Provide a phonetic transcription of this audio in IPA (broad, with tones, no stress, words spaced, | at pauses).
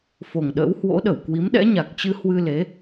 fo˨˩ŋɗə̰ː˧˥whwo̰˧˥ɗə˧˩w kwi˨˦mɗɛ̰˧˥ɲa˨˩k̚t͡ɕɨ˧ hwɨ˧le˨˦